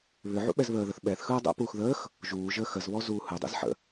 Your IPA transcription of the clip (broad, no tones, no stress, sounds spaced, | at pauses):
β ʏ ʕ ṵ ɓ ɛ z β əː ð ə θ ɓ ɛ θ x ɯː dˤ ɛ̰ p uː x ð əː x | ʒ uː ʒ əː x ə z β ɔ z uː h ɯ dˤ ḭ z ħ ə̰